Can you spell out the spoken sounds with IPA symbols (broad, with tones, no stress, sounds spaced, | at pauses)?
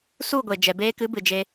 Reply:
s u˦˨ ɡʷ e˨ d͡ʒ ɛ˨ b eː˧ k ɨ˨˦ b ɨ˨ d͡ʒ e˧